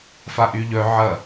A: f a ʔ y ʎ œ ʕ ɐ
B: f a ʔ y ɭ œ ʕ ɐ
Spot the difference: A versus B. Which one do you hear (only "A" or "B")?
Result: A